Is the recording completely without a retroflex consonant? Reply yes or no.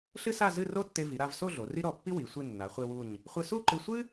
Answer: yes